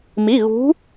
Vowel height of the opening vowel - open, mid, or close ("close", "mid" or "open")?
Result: close